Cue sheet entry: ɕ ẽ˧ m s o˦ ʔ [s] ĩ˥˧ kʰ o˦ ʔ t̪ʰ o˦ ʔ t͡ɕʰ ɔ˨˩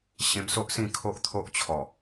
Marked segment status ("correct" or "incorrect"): correct